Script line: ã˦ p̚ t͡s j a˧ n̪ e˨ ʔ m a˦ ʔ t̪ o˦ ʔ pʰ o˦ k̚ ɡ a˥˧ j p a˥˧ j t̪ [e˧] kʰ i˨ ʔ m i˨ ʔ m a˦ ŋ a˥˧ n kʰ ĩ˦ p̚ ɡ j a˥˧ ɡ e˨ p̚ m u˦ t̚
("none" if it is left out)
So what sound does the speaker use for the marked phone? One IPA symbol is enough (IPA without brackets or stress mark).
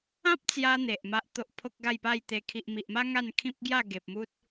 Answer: e˧